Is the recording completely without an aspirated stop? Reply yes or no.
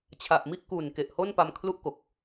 no